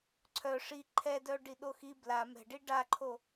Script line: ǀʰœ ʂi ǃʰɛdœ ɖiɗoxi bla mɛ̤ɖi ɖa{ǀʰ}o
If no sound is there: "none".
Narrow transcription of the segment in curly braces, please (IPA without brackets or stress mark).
ǃʰ